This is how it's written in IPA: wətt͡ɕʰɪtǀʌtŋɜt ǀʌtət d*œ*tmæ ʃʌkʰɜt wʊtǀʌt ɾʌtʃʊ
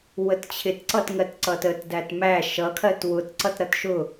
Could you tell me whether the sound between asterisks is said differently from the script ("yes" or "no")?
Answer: yes